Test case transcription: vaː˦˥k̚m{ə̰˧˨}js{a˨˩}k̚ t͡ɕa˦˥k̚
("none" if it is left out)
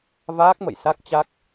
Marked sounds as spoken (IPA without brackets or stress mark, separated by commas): ə̰˧˨, a˦˥